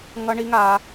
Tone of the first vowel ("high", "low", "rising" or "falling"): high